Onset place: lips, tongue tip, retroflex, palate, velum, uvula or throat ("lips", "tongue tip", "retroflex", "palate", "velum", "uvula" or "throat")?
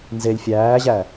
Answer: tongue tip